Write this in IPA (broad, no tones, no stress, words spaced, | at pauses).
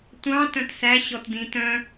tʷɑ̃ tœ̃tsæ ɕɔtdĩt œ̃